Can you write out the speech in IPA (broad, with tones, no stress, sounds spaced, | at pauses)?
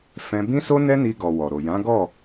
f ɛ̃˧ b ĩ˦ s o˦ n ɛ˦ n i˧ ɡ ɔ˨ w ɔ˨ ɾ o˨ j ã˨˦ ɡ ɔ˦˨